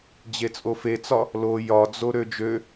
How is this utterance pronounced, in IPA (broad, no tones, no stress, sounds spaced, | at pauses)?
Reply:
d͡ʑ e t͡sʼ o f e t͡s ɒ | l o j ɒ d͡z o ɾ ø d͡ʒ ø